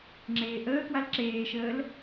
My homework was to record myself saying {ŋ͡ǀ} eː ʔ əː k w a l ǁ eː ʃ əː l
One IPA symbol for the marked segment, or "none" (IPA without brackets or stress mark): ŋ͡ǁ